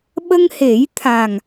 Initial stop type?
implosive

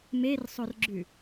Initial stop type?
click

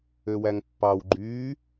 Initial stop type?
plain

